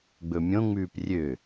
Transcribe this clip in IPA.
ɡ͡bɵmʲõŋ͡mʉːp rʲø

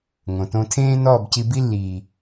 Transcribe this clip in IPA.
ŋõ˨tõ˧tʰẽː˦ nɔː˦˨bci˧bi˦ lːiː˨

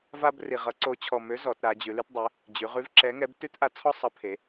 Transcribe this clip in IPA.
va˦b ri˨˩ʁʌ˨˥ǀo˨˥t͡ɕʰɔ˨˩ mø˨˥ zɔ˩˧tɾa˩˧ d͡ʑʉ˩˧lʉ˦tdˤø˨˥ | d͡ʑʉ˩˧ʁʉ˨˥v ǁɛ˨˥ŋɛ˨˥b tʉ˦tʔa˨˥ t͡sʰɔ˦sˤʌ˨˥pʰe˩˧

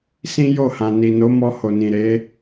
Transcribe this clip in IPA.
sĩ˦jo˦˨hã˨ ni˨no˨˦mɔ˧ ho˨nĩ˨ ɾe˨˦

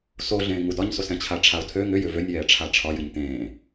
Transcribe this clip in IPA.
soɮẽː ŋudɒɲsos ɛ̃t͡ɕʰaʈ͡ʂʰaʊ̯tʰø ŋʏjʏ vønʲjɛː ʈ͡ʂʰaʈ͡ʂʰɒ jɨɲtẽː

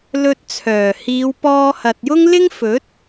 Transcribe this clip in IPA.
lɵ˧t̚t͡sʰœː˨˩ hiː˨˧wpɔː˧ hɐ˨t̚jʊ˥ŋ lɪ˥ŋ fɵ˨˥t̚

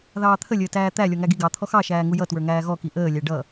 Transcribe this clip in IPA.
ðɑːt̪ʰə lʲəːtæːt̪æ lʲɔŋæɡiɡɑ t̪ʰɔxɑ ʃæːŋujʌ twə˞ŋæːɣɔ kiʔəː lʲæɖʌ

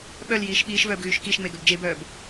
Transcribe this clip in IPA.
ɓœljiːʃ ɓiːʃvœːbɣyːʃ kiʃŋ͡meɡœb d͡ʒebœːb

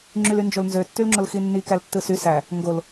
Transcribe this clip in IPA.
ŋ͡ǁylynd͡ʒolnzø tːylŋ͡ǁolxinːi kæltːɯsy sæ | ŋɡol

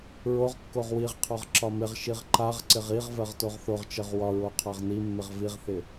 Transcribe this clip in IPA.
ɹoʁkːoʁ wiʁqʰɒʁ ǁɒmɪʁʃiʁ ǃaʁǀɪʁ iʁ vɜʁtoʁθoʁt͡ʃɜʁ wɒɹo qʰaʁnimːɪʁ viʁθɪ

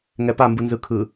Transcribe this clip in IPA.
ŋɛpambɯ nzɯkʰɯ

